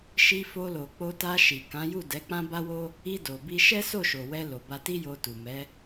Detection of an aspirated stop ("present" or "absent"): absent